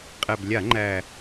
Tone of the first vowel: low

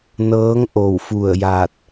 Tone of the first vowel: rising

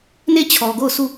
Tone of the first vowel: falling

